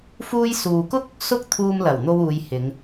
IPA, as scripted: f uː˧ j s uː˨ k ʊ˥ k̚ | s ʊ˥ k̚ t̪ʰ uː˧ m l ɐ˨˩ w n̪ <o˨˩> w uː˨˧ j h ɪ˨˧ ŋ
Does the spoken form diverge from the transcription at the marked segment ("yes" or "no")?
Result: yes